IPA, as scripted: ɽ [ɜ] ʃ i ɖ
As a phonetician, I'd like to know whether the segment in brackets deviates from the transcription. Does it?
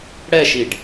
yes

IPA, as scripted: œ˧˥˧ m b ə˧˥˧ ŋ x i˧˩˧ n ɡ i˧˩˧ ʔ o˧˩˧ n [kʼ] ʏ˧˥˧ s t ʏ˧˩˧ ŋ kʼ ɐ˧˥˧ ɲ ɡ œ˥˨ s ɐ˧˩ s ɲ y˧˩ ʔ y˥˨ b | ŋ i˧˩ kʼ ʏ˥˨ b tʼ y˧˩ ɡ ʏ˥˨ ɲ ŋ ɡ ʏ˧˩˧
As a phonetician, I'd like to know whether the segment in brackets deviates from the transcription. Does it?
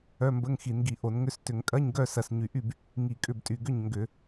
yes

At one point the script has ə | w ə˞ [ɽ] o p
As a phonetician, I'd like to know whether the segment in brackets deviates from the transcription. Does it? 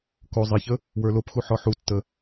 yes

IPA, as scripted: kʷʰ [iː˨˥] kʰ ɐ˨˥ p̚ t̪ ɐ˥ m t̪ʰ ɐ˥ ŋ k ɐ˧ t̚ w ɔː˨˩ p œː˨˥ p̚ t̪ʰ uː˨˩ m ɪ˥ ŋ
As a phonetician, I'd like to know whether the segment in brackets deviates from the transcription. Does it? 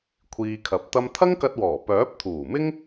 yes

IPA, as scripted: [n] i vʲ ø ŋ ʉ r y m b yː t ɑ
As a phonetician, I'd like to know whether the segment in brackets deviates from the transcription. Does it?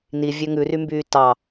no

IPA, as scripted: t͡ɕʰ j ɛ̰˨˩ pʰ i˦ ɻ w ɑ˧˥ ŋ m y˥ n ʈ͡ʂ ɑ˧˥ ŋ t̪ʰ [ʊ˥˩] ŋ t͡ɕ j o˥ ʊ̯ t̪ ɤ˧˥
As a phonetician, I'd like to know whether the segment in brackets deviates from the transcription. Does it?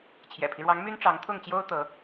no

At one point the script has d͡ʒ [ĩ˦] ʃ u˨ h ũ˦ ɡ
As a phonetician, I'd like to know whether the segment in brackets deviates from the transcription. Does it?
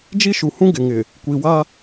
yes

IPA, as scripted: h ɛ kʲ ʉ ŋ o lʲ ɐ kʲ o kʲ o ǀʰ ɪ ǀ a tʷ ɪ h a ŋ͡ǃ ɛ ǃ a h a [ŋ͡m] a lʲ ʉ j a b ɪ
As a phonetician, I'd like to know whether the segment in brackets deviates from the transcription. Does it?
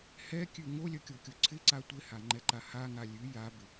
yes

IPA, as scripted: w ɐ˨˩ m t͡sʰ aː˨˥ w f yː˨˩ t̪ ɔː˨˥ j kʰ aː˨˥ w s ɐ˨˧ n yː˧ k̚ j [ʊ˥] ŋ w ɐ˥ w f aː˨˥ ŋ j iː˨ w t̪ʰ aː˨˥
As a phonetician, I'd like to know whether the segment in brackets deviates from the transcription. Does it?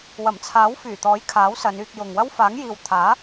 yes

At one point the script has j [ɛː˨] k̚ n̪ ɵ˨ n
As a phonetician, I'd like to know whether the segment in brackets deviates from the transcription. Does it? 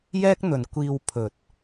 yes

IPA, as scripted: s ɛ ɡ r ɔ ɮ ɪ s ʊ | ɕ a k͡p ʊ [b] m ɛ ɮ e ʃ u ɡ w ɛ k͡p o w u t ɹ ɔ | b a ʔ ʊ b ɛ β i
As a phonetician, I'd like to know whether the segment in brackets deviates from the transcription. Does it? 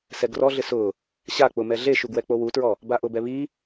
yes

